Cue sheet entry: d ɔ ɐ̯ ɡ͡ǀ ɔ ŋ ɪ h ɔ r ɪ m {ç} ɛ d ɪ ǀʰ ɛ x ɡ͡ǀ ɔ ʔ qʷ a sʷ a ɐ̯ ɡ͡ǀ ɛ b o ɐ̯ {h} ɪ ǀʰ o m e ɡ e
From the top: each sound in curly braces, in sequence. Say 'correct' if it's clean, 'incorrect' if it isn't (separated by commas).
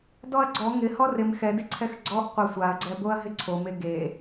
incorrect, incorrect